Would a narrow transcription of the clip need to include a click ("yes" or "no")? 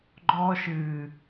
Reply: yes